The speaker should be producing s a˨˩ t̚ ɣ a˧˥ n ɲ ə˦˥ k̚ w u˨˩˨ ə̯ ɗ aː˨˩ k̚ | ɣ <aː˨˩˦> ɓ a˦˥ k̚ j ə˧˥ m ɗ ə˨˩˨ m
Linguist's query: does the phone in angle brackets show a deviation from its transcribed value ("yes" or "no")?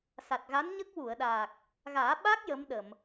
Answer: no